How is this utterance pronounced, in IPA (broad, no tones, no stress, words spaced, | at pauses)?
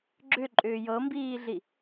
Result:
ɡ͡ǁʏǃʼʏː jɤmbiːɮi